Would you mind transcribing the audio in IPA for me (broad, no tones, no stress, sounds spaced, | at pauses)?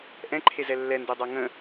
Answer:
ʔ ɛ̃ ǃʰ e z ɛ lː ɛ n d e dˤ a ŋ ə̃